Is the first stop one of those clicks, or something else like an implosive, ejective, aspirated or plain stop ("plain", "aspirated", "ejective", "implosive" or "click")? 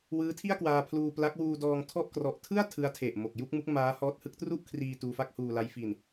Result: aspirated